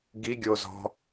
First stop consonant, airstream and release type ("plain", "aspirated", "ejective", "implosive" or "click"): plain